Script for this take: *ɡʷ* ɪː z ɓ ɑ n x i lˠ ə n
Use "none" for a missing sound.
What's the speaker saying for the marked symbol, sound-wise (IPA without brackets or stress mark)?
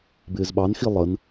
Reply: b